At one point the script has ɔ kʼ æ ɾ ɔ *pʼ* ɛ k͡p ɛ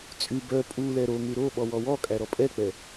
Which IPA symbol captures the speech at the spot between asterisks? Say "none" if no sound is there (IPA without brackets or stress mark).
pʼ